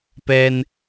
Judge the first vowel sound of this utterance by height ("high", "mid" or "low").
mid